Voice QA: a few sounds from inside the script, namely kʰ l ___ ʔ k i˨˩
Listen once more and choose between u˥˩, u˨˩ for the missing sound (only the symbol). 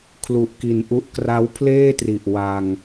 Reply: u˨˩